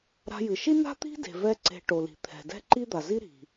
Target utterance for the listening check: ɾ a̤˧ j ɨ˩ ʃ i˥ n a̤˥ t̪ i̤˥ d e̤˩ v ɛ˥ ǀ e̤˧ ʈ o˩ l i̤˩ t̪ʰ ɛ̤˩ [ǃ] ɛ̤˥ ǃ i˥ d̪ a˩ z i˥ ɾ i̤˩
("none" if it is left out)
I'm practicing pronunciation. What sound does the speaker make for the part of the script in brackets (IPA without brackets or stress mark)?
d